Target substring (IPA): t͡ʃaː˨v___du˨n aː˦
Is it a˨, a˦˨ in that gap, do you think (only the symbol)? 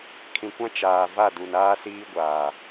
a˦˨